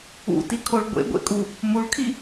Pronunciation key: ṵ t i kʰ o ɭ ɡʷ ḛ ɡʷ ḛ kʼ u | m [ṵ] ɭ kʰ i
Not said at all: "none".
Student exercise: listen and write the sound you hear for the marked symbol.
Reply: u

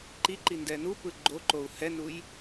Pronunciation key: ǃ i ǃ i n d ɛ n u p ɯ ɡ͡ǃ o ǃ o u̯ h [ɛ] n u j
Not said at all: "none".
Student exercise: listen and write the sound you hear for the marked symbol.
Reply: ɛ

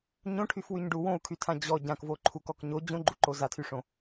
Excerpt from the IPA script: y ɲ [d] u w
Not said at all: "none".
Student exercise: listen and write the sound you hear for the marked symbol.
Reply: ɖ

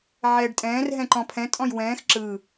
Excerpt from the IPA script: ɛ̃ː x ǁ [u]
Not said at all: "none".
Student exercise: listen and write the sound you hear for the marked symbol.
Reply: ɯ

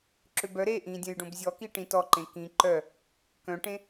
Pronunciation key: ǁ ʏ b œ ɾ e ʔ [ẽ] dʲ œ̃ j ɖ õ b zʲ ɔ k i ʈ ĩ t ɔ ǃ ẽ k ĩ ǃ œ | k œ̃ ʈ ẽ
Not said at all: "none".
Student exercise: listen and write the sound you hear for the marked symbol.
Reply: ĩ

